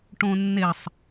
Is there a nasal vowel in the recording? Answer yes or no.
yes